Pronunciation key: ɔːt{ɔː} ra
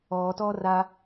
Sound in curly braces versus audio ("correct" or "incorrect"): correct